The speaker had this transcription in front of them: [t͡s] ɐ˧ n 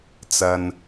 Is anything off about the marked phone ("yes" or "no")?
no